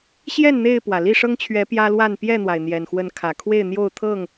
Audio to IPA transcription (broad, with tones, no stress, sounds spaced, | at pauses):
ɕ j ɛ˥˨ n n̪ e˥˨ ɪ̯ p w ä˩ l i˥˨ ʂ ɤ˦ ŋ t͡ɕʰ ɥ ɛ˨˦ p j ä˦ l w a˥˨ n p j ɛ˥˨ n̪ w a˩ ɪ̯ n̪ j ɛ˨˩ n x w ə˨˦ n kʰ ä˨˩ kʰ w e˥˨ ɪ̯ n̪ j o˥˨ ʊ̯ t̪ʰ ɤ˥˨ ŋ